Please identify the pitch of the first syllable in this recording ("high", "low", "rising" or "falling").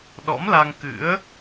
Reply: rising